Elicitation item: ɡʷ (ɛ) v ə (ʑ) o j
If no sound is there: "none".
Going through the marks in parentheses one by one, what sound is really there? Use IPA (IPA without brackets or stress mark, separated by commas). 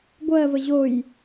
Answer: ɜ, ʑ